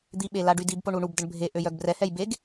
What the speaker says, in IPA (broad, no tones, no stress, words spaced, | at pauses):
d̪iɓe laɖydibpo ɳuɳubdəɳ bʱe ʔøjœɡbrɛhɛj beɡ